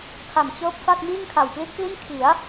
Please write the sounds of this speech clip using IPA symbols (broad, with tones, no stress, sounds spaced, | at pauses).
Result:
kʰ a˨˩ m t͡ɕ ɤː˦˥ p̚ f a˥˩ t̚ m iː˥˩ ŋ kʰ a˨˩ w p l i˦˥ t̚ p l i˥˩ n kʰ i˩˦ a̯